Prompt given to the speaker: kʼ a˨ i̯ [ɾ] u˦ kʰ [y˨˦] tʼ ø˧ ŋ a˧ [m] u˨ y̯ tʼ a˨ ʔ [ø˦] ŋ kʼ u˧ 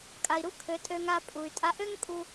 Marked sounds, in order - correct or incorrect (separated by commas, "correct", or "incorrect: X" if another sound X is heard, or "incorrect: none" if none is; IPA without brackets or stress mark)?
correct, incorrect: ø˨˦, incorrect: pʼ, correct